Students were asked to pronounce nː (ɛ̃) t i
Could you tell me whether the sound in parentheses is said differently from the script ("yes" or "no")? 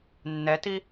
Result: yes